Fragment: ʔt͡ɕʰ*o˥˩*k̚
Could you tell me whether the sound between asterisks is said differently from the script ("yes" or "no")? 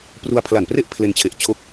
yes